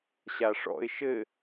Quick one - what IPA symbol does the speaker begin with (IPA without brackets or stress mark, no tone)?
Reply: ɕ